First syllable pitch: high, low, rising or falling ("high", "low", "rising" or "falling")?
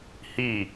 falling